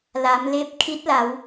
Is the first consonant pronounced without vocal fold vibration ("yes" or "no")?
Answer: no